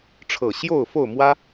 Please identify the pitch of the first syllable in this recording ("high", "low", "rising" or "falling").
low